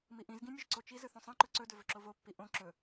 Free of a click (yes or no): no